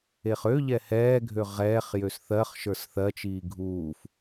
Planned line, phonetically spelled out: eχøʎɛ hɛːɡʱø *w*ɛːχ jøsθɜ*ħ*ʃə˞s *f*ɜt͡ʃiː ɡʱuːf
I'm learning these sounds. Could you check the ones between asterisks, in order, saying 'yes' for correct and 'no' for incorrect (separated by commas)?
no, no, no